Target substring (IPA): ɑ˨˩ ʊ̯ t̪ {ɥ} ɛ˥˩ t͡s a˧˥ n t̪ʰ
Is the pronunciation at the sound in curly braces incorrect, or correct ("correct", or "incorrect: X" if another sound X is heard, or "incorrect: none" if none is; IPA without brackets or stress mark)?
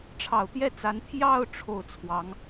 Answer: incorrect: j